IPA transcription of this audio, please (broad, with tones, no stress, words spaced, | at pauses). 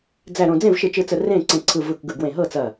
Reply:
d͡zæ˧˩ɾõ˧˩ d͡zẽ˥˩vʃɯ˧˩t͡ʃɯ˧˩t͡sə˧˩ rẽ˥˩ǀẽ˧˩ǀʰɯ˧˩ vɯ˧˩kɡɯ˧˩ɡwẽ˧˩ ɦɤ˥˩t͡sɐ˧˩